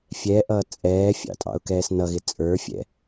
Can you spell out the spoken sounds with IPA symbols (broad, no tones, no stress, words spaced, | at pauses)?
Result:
fʲɛʔʌː t͡sʼɛːfʲɑ̰ tʼɑ̰ʊ̯kɛːsnʌɣɪ t͡sʼə˞fʲɛ̰